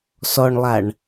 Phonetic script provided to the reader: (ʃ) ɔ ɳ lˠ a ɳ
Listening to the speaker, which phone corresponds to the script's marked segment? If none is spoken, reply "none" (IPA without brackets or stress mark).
s